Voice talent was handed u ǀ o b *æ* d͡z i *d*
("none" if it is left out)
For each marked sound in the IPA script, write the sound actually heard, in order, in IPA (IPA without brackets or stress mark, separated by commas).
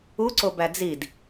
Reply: æ, d